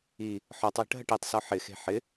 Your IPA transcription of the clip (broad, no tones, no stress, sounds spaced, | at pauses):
i | ħ ɔ tˤ j ə̤ ʈ ɦ ə ʈ e tˤ s ɔ ħ ɪ x e̤ ħ ɪ